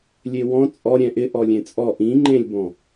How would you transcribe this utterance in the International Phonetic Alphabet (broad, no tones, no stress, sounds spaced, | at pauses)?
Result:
lʲ e w ɔ̃ t͡sʼ ɔ ɾʲ ɛ̃ ʔ ɪ ʔ ɔ lʲ ẽ t͡sʼ ɔ ʔ ĩ ŋ͡ǃ ẽ lʲ b ɔ̃